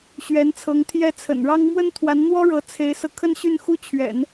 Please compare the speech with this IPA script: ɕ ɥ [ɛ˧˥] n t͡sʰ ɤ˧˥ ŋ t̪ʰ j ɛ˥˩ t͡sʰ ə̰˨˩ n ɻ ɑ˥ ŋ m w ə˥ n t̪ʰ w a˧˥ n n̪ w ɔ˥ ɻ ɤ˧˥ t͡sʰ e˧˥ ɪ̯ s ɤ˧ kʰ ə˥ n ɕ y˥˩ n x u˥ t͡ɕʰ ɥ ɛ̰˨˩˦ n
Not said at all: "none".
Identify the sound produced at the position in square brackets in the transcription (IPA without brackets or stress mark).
ɛ˧˥